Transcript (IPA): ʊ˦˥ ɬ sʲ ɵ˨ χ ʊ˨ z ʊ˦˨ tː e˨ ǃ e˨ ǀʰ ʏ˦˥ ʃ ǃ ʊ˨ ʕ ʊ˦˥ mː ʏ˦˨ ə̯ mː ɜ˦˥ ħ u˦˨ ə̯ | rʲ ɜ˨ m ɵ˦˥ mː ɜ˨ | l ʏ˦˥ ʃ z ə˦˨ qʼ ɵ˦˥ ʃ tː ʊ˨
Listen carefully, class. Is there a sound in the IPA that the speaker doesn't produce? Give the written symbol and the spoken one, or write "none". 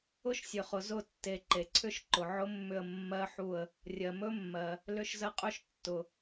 ɬ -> ʃ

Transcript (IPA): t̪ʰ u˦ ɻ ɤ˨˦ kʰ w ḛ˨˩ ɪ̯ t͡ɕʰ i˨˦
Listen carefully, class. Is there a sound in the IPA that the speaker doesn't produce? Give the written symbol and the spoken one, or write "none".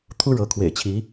none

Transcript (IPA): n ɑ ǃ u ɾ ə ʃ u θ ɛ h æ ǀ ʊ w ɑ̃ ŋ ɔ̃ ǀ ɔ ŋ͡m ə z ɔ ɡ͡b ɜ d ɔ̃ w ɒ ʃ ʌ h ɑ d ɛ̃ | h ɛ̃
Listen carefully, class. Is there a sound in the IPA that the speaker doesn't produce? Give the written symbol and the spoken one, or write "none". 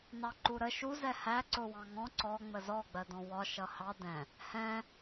θ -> z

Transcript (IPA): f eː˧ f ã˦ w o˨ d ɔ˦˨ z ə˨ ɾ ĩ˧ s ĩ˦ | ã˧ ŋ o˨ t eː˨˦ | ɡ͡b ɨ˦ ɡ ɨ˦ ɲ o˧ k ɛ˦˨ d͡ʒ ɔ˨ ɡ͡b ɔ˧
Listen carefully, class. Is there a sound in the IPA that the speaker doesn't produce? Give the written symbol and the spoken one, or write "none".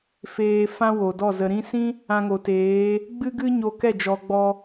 none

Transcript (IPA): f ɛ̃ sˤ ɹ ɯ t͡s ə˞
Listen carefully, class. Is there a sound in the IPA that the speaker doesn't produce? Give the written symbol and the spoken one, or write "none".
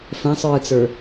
none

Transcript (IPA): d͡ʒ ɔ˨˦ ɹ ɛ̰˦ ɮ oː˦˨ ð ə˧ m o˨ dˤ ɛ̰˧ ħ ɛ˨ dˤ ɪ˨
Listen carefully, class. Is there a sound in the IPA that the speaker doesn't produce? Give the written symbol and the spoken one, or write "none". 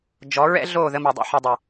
none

